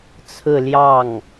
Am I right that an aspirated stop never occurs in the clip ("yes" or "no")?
no